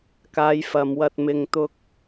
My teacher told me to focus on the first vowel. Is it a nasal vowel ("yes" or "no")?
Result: no